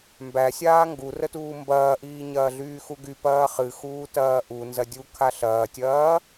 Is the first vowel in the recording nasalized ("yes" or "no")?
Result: no